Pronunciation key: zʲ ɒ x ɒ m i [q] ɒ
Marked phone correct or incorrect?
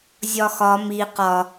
correct